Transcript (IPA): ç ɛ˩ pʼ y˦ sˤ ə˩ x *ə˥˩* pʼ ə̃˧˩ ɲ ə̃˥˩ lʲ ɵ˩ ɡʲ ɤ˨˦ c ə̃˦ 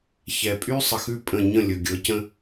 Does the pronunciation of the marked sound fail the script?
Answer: yes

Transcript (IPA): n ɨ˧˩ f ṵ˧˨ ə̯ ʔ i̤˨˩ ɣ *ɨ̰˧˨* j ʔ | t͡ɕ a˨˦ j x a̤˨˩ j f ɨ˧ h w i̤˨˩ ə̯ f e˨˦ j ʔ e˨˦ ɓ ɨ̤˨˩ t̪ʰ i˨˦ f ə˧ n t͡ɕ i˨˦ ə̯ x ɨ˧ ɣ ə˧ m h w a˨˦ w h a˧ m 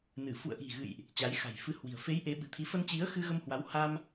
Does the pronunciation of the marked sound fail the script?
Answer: no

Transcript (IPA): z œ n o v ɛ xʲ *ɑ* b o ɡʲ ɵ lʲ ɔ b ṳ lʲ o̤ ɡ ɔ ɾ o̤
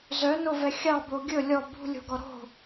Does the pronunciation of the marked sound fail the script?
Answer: no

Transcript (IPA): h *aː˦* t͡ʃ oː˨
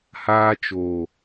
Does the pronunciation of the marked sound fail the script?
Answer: no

